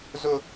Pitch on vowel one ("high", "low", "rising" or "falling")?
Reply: high